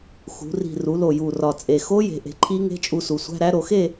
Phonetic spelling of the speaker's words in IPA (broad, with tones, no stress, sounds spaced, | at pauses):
x ṳ˩˧ r i̤˨˩ r u˩˧ l o˨˩ j u˨˩ r ɒ˨˩ t͡sʼ e˨˩ x o˦˥ j e̤˩˧ ʔ e̤˨˩ ǃʰ i˦˥ ŋ e̤˧˥˧ t͡ʃʼ u˧ s u˩˧ sʷ æ̤˧˥˧ ɾ æ˦˥ ɾ o˩˧ x e˥˧